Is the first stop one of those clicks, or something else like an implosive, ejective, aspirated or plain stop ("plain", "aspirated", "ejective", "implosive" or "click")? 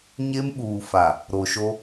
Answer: implosive